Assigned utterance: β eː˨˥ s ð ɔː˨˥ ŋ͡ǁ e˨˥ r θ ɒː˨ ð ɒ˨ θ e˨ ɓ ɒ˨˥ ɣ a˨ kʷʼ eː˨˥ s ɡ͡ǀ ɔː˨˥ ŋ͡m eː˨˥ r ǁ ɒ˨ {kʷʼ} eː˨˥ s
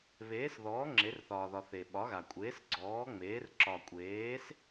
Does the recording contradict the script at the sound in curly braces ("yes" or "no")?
no